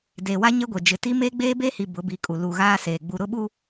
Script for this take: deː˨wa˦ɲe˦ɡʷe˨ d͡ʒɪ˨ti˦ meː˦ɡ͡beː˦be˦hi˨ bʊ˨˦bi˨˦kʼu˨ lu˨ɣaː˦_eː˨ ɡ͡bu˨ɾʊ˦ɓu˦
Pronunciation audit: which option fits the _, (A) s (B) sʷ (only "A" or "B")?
A